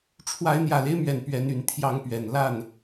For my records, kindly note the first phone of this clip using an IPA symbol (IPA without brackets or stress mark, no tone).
ʈ͡ʂʰ